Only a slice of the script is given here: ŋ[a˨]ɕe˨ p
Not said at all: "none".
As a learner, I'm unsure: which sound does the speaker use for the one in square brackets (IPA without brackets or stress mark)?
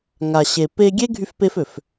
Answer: a˨